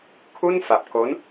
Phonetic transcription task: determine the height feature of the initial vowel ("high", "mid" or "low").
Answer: high